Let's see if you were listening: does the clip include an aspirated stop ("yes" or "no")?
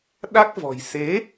no